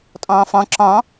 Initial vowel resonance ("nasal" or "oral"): nasal